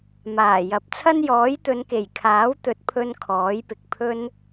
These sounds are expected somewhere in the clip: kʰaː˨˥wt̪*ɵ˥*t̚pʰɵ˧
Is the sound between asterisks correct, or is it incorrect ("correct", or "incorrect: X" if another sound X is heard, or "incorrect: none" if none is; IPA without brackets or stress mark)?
incorrect: ɵ˨˥